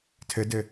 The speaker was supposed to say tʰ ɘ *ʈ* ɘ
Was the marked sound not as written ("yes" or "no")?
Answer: yes